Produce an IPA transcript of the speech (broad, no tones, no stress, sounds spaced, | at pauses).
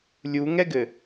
lʲ u ŋ ɛ ɡ ɘ